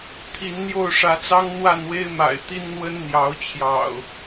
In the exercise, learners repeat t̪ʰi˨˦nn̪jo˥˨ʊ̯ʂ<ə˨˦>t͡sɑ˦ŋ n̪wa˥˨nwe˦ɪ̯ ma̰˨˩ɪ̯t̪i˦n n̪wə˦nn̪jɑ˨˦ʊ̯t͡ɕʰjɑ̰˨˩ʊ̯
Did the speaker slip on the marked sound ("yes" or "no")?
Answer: yes